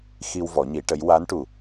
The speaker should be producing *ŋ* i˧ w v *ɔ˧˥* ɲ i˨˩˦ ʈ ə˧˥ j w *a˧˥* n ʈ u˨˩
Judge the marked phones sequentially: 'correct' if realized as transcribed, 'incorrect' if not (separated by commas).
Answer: incorrect, incorrect, correct